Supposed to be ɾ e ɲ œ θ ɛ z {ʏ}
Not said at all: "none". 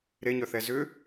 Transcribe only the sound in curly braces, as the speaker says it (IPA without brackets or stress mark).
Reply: ʏ